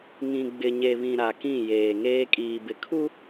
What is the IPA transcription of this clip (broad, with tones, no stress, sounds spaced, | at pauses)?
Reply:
ŋ ĩ˨ ɡ͡b ɪ˨ ɲ e˨ β ĩ˨ ɾ a˨ k ĩ˦˨ j eː˨ ŋ eː˦ kʼ iː˨ b ɪ˨ kʰ u˦